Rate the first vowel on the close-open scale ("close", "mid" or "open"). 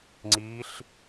close